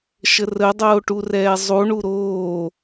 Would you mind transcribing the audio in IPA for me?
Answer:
ʃərədˤoː ʈurɛːzˤuɳu ɾoː

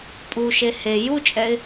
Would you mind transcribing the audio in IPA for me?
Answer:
pʼuʃe he jut͡ʃʼɛɪ̯

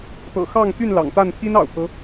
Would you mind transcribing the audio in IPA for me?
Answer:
t̪ɤ̰˨˩xɑ˥˨ŋ t̪y˥˨n lɑ̰˨˩ŋt̪a˥˨n pʰi˦nɑ̰˨˩ʊ̯pʰɤ˦

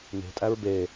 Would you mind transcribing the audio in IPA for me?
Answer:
ne̤tʼæɹ be

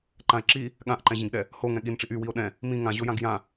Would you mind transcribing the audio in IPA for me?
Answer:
ǃãe̯ǁi | ɠãʔǃɛ̃ʑĩɡɗɛ | hoŋɛ̃ ɠinʈ͡ʂiʔ ywio̯ ɗɛ̃ | mĩ ŋãʑojãɡ jã

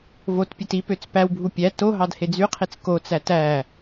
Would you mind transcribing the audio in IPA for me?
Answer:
votpʲet ipøt͡s pæwbʱu pʲæ to ɦɑdhed͡zyqʰit͡s kot͡sæ tæ

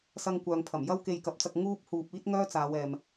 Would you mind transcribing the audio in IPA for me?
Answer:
sɐ˧ŋkʷœː˨ŋpʰɐ˨˩m jɐ˥wke˧jkɐ˨˥p̚t͡sɐ˧k̚ ŋuː˥p̚huː˧p̚ iː˥t̚ŋœː˥t͡saː˨˧w ɛː˨m

